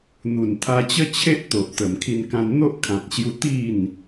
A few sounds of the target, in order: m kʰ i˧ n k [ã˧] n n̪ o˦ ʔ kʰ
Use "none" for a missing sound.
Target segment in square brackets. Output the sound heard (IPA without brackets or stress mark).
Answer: ã˧